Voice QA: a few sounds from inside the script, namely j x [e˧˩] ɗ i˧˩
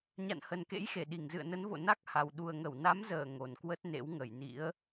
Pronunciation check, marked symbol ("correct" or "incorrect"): correct